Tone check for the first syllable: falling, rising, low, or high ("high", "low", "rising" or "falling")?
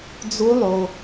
rising